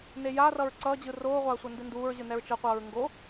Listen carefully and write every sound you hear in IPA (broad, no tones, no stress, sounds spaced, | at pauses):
n e j a r ʌ ɹ ǀ ʌː d͡ʑ ɯ r oː ʁʷ a ɐ̯ sʷ ʌ n d ɯ n d uː ɹ ʑ ɯ n ɛ ɹ t͡ʃ ʌ qʷ ʌː ɹ ŋ ɡ o